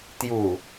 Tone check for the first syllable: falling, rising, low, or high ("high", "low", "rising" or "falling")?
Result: low